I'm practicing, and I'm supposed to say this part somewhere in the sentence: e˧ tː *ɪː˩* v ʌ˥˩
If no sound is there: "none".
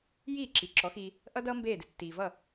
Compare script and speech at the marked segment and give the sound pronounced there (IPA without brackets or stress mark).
iː˩